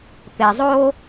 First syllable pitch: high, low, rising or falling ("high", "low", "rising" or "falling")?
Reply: low